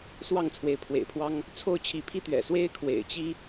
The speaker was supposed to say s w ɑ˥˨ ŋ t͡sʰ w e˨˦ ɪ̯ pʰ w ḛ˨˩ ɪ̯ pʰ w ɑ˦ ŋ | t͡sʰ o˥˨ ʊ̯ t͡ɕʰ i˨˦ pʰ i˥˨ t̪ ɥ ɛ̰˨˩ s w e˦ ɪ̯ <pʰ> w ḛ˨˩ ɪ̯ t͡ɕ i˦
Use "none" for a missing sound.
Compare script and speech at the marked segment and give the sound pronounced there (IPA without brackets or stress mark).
kʰ